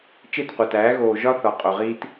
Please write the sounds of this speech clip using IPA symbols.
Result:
t͡ʃ e˦˨ t qʷ æ˨ t æː˨˦ ɣ oː˨ ʒ ɒ˦ θ ɒ˨ qʼ o˨ ʁ iː˦ t

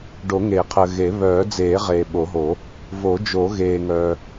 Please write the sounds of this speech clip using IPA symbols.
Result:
ɖ o˨˩˦ ŋ eː˨˩˦ qʰ əː˨ ɣ e˨˩˦ β œː˨˩˦ d͡z eː˨˩˦ ʁ eː˨ ɓ o˨˩˦ ɦ o˨˩˦ | v o˨˩˦ d͡ʒ o˨˩˦ ɣ eː˨ ŋ œː˨

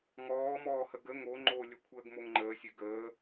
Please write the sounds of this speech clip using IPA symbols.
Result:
ŋ ɔː m ɔː h ə ɡ ə ŋ o ŋ͡ǃ o lʲ ə kʷʰ əː ɡ m o ŋ ŋ͡ǃ əː sʲ ø ɡ əː

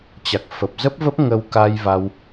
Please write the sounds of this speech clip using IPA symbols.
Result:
t͡ɕ a˨˩ k̚ f ə˨˩ p̚ z ə˦˥ p̚ v ə˦˥ p̚ ŋ ə˧ w k a˧ j v a˧ w

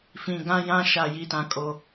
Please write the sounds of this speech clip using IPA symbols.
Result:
f ĩ˨ ɡ ã˦ j ã˦ ʃ a˨ j i˨ t ã˨ kʼ o˨

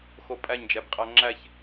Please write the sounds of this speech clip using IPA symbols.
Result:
x o pʼ æ ɲ d͡ʒ æ b qʼ æ ŋ͡ǁ æ ç

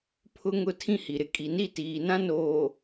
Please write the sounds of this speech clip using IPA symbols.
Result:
pʰ ʊ˦ ŋ ʊ˦ tʰ ĩ˦ h i˨ ɾ ɪ˨ kʼ i˨ n i˦˨ t iː˨ n ã˦ n oː˨

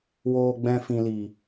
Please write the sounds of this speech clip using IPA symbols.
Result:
w oː˨ ɡ͡b ɛ̃˨ f ĩ˨ l i˨

